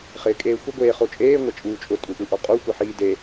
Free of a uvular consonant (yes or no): no